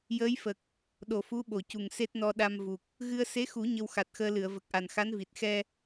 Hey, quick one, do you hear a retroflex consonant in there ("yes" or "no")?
no